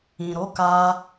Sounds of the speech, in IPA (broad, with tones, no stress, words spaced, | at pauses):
ĩ˨ɾo˨˦ka˧